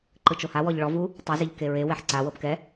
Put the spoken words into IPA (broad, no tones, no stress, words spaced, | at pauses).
ǃɯt͡ʃohawɔʎ ɭɔvu | tˤiziʎ keɹewɛħ ǀawɤp kɛ